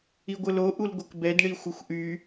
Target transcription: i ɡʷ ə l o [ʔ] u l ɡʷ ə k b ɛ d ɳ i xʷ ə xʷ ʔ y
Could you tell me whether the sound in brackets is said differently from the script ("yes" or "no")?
no